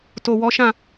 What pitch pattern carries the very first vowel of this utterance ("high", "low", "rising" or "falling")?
low